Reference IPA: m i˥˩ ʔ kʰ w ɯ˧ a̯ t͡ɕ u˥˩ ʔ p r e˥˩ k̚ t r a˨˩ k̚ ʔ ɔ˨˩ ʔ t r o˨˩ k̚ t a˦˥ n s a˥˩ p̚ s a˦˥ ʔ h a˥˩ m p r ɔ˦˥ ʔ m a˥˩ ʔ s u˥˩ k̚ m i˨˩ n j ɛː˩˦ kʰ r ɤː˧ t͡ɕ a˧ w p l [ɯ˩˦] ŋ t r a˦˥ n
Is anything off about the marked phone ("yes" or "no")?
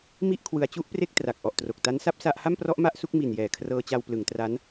no